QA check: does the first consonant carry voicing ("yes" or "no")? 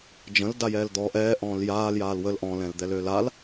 yes